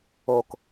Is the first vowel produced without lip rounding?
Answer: no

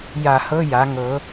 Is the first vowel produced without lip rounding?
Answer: yes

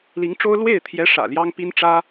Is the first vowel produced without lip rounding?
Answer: yes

